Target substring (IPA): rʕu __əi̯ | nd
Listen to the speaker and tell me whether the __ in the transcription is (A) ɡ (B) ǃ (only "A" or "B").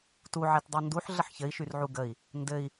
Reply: A